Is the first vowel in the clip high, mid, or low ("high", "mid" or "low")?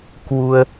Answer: high